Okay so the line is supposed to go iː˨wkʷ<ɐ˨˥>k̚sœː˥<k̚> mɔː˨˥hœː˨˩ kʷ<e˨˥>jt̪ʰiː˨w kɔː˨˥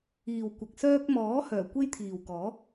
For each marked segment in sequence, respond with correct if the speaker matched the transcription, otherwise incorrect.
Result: incorrect: ɐ˨, correct, incorrect: e˥

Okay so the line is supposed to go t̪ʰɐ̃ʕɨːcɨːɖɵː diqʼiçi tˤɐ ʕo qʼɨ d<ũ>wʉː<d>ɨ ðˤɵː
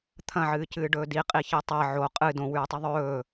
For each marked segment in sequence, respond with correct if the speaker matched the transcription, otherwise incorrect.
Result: incorrect: õ, incorrect: tˤ

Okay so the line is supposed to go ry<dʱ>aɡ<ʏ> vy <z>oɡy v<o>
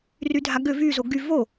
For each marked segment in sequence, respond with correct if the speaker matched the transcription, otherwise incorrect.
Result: correct, correct, correct, correct

